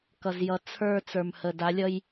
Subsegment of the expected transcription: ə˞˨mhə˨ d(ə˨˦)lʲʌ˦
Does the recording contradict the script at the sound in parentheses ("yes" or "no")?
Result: yes